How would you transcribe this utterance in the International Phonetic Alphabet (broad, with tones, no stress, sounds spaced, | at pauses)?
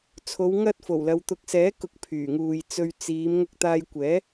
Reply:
t͡sʰ o˨˧ w ŋ ɐ˧ t̚ f o˨˩ w l ɐ˨˧ w t̪ ʊ˨˥ k̚ s ɛː˨˥ k ʊ˨˥ k̚ pʰ yː˨˩ ŋ uː˨ j t͡s ɵ˧ ɥ t͡s iː˨˧ m ŋ ʊ˧ k̚ t̪ aː˧ j kʷ ɛː˨˥